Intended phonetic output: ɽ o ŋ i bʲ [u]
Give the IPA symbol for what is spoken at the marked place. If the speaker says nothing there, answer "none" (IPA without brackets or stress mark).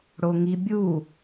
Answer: u